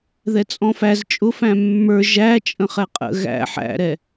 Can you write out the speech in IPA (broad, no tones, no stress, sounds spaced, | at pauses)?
ð ɛ t͡sʼ ɔ̃ f æ z t͡ʃʼ ʊ f æ̃ mː ə˞ ʒ æ t͡ʃʼ ə̃ χ ɛ qʼ ə̰ ɣ æ̰ ħ æ̰ ɾ ɛ